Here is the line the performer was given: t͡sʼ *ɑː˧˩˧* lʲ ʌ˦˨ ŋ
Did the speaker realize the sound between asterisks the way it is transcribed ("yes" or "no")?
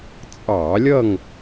yes